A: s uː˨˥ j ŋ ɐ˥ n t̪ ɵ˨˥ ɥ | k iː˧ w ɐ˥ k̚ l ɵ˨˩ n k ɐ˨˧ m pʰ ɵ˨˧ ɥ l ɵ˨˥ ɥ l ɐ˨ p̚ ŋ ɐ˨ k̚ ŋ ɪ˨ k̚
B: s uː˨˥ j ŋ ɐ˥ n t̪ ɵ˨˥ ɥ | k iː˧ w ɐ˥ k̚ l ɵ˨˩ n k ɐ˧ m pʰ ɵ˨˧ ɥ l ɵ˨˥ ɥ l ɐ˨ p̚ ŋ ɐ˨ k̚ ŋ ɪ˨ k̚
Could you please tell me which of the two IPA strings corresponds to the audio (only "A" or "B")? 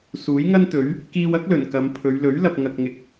A